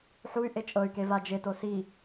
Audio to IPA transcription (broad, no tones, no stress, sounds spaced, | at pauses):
ħ u y̯ ʔ e t͡ʃʼ ɤ y̯ k e v a d͡ʒ e t o s i